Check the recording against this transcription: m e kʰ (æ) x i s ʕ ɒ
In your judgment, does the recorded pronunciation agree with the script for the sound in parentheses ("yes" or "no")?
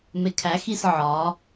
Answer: yes